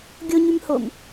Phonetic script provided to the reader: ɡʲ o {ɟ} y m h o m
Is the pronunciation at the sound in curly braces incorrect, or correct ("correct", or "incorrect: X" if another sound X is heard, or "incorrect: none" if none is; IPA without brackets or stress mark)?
incorrect: ɲ